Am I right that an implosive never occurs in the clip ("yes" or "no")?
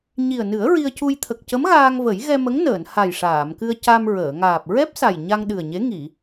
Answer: no